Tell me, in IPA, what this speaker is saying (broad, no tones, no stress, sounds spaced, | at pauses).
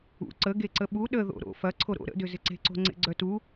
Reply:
ṵ ǀ ə ɡ e ǀ ə ɓ u ɗ ə ð o̰ ɾ o̰ f ɐ ǀʰ o ɾ o̰ ɾ ə̰ d ʏ z ɪ ǀ e̤ ǀ o̤ ŋ͡ǀ ḛ ɡ͡ǀ œ t u